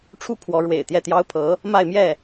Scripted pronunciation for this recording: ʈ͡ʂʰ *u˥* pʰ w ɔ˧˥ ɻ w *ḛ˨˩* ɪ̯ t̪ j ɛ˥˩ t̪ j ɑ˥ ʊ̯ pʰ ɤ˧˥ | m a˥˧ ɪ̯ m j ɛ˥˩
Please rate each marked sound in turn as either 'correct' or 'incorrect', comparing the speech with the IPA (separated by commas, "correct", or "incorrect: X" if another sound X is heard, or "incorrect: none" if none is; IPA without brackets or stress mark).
correct, correct